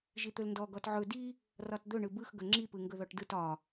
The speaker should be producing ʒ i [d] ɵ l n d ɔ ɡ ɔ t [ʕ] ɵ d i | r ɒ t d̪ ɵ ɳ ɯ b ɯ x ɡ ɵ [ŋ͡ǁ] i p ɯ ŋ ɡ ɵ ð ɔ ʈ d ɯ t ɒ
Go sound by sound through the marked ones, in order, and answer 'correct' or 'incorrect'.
incorrect, correct, correct

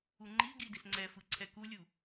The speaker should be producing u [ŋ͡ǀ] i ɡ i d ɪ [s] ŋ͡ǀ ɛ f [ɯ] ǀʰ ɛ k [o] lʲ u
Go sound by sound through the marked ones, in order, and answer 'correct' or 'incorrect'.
incorrect, correct, correct, incorrect

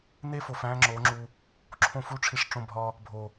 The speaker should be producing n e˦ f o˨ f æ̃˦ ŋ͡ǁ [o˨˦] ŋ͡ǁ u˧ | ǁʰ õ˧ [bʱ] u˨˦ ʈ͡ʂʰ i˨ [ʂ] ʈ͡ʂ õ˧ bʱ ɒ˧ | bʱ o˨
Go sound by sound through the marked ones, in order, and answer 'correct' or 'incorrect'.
correct, incorrect, correct

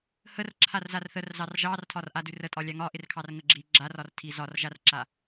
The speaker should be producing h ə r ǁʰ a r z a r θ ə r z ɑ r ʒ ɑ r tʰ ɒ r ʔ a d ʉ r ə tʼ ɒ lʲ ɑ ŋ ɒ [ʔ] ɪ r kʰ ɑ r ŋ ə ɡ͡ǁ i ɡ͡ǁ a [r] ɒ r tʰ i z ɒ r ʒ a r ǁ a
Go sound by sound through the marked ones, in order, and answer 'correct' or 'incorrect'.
correct, correct

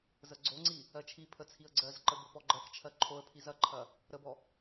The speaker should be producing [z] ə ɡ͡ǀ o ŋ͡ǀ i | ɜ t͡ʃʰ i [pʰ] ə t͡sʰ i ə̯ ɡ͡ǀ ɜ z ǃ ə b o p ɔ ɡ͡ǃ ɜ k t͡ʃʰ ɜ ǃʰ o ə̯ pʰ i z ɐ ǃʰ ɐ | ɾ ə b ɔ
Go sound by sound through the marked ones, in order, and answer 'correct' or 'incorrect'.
correct, correct

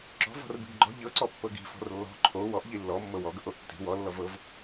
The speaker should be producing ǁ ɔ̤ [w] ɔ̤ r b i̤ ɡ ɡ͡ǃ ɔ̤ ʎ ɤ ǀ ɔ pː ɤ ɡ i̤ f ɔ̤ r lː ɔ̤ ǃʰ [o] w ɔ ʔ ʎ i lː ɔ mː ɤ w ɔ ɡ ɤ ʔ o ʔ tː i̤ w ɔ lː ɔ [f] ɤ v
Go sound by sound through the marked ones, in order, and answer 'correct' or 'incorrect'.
incorrect, correct, incorrect

